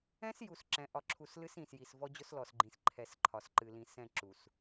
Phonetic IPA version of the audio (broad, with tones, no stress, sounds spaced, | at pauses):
ɛ̃˦ s j u˨ s ǁ ɛ̃˨ ʔ ɒ˨ ǁʰ u˨ s l ɨ˦ s ĩ˨ s j i˨ s v ɔ˦ d͡ʑ ʊ˦ s l ɔ˨ s ɡ͡ǃ ĩ˨ s ǃʰ ɛ˨ s ǃʰ ɒ˨ s ǃ ɨ˨ l ĩ˨ s ɛ̃˦˨ ǁ u˨ s